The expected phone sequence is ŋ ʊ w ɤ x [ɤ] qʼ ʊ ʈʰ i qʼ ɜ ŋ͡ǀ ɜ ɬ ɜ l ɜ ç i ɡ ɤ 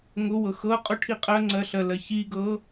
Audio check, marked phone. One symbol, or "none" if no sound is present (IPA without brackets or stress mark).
ɤ